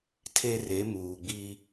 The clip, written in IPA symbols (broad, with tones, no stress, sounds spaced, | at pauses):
tʰ e˦ r e˨˦ m uː˨ ɡ͡b i˦